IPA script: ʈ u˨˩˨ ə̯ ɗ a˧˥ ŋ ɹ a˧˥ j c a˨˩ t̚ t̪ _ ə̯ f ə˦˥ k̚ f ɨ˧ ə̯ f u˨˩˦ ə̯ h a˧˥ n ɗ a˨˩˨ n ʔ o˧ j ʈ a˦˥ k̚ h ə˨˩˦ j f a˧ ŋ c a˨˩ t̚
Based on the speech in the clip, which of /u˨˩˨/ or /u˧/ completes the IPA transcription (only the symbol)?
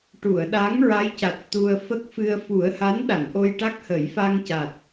u˧